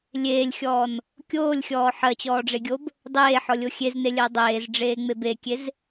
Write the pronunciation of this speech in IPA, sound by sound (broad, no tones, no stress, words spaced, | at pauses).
lʲeːlʲxʲɔːn | kʲoːlʲxʲɔː ħɜt͡ɕɔːɖ͡ʐeɡʲob | dˤeːħɔlʲo xʲeznelʲɜ dˤeːzɖ͡ʐeːŋ͡meb ekʲez